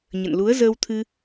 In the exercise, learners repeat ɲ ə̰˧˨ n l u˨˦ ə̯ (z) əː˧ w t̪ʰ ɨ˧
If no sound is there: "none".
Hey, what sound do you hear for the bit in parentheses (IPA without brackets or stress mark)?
z